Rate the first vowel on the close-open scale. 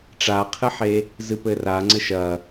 open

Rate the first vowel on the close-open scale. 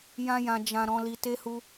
open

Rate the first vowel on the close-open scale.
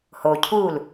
mid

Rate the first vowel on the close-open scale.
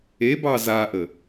mid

